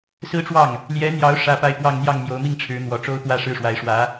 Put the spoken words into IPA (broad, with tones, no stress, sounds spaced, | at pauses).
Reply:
s ɹ̩˥ ʈ͡ʂ w ɑ˥˩ ŋ | l j ɛ˧˥ n̪ j ɑ˧˥ ʊ̯ ʂ ä˥ p a˥˧ ɪ̯ p w ɑ˥˧ ŋ n̪ j ɑ˥˩ ŋ m j o˧˥ ʊ̯ m i˥˩ ŋ ʈ͡ʂʰ ɻ̩˧˥ n̪ w ɔ˨˩ ʈ͡ʂ o˥ ʊ̯ t̪ w ä˥˧ ʂ ɻ̩˥˩ ʂ w a˧˥ ɪ̯ ʂ w ä˧˥